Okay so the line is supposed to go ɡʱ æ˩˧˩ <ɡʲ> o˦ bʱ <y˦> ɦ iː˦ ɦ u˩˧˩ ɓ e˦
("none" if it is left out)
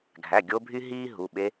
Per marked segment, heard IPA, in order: ɡʲ, y˦

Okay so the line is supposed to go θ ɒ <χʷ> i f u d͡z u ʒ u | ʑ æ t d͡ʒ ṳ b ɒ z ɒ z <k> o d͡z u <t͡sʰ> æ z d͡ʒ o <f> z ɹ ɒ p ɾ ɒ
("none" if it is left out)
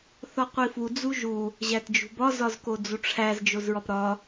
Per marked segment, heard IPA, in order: qʷ, k, ʈ͡ʂʰ, none

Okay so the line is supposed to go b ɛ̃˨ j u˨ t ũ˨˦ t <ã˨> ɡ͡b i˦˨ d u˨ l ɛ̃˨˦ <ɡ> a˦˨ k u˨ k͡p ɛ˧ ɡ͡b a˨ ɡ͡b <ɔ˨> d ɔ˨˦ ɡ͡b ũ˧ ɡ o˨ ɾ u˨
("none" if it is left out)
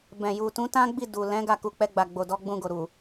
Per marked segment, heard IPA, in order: ã˦, ɡ, o˨

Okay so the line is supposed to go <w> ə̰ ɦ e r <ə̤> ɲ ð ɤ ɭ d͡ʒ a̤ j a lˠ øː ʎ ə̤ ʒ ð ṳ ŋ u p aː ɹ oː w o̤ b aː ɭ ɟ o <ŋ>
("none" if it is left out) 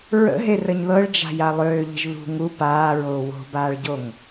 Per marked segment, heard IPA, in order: ɹ, ə, ŋ

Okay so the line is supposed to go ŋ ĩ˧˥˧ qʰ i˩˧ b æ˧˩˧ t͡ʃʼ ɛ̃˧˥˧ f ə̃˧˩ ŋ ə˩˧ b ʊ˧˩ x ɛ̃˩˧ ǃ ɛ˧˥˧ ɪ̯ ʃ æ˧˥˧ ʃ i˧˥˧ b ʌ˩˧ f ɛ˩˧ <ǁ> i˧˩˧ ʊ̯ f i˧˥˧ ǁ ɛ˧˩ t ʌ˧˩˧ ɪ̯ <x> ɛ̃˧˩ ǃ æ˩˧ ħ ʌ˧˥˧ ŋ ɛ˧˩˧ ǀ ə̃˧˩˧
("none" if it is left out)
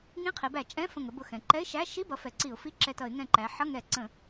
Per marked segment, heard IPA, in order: ǀ, ŋ

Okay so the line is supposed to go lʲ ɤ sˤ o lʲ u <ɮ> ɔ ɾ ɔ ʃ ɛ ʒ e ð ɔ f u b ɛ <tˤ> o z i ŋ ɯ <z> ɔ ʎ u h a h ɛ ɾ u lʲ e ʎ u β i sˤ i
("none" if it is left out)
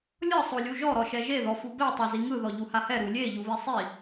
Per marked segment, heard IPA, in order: ʒ, tˤ, ð

